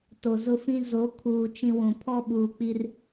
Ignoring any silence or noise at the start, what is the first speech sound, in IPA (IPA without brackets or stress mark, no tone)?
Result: t